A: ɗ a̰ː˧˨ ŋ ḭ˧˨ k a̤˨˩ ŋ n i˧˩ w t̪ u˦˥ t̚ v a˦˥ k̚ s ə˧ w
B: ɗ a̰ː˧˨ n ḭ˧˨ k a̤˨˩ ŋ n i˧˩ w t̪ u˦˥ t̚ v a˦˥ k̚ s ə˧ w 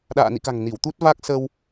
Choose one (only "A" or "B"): B